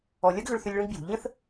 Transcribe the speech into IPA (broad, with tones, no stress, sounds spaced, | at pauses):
ɔ˩ lʲ ɐ˥ ɡ ɣ ʏ˧ ɭ θ ʏ˧ lʲ ɭ ə̃˥ ɡ b j ṳ˩ ʎ ə̃˥ θ